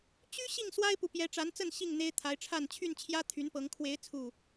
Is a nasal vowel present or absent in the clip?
absent